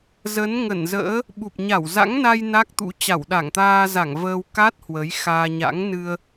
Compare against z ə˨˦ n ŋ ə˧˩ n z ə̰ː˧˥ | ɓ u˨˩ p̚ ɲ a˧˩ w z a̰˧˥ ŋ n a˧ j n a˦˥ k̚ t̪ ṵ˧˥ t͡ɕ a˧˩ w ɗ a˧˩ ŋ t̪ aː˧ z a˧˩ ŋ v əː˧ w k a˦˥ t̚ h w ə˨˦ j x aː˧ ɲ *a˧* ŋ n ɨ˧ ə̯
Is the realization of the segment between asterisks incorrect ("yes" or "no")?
yes